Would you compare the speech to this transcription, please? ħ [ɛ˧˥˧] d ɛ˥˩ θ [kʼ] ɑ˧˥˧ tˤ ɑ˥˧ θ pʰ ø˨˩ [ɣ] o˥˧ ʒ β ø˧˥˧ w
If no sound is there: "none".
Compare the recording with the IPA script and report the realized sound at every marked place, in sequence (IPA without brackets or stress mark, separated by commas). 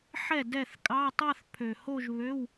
ɛ˥˩, kʼ, h